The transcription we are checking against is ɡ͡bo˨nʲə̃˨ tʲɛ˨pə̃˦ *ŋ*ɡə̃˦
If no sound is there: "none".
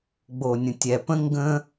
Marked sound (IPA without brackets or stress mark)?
ŋ